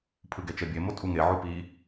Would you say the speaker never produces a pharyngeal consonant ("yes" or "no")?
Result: no